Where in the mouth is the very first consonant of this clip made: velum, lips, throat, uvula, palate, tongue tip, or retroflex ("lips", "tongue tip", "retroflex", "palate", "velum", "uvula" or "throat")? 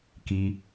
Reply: velum